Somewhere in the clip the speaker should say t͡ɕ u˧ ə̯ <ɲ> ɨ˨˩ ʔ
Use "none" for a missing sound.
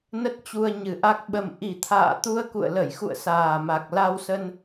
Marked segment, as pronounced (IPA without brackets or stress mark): ɲ